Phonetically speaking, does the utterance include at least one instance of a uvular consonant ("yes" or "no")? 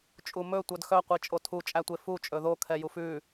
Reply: yes